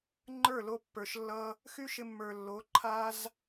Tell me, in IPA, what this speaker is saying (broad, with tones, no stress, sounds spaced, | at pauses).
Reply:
ŋ͡ǃ ə˞˦˨ l o˧ pː ə˞˨ ʃ lː ʌ˧ | x y˦ ʃ ɪ˧ mː ə˞˨ lː o˨˦ ǃʰ a˧ z